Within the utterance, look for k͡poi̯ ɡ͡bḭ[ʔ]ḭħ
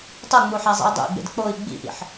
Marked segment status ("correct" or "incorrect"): correct